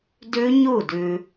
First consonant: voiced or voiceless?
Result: voiced